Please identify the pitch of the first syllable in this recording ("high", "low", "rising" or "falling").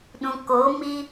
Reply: low